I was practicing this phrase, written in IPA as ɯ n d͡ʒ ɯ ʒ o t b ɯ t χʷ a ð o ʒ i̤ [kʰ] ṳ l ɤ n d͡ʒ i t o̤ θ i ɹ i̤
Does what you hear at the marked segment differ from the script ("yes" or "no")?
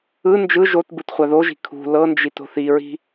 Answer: no